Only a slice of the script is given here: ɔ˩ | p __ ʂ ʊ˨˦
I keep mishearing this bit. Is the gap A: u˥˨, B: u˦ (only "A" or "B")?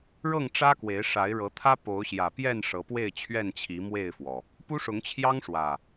B